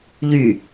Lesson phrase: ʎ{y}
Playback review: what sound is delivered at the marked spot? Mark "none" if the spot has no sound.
y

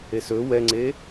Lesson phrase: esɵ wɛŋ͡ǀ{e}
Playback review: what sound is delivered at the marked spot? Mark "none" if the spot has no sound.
e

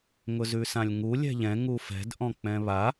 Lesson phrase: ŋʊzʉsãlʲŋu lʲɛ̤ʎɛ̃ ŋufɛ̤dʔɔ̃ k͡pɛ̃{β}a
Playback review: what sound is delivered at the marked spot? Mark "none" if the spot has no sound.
β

